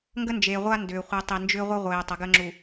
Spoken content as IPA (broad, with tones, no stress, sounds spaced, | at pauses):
ŋ ɡ ə˦ n d͡ʒ eː˨ ʁʷ a˦ n d ʏː˨ χʷ i˨ tˤ i˨ n d͡ʒ ʏː˦ ʁʷ ə˦ ʁʷ eː˨ tˤ ə˨˦ ɡ əː˦ ŋ͡ǁ u˨